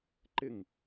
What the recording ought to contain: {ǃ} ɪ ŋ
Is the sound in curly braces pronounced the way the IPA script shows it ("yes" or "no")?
yes